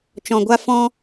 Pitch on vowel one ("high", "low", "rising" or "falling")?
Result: low